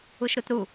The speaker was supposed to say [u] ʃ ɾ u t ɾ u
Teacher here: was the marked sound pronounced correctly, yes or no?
yes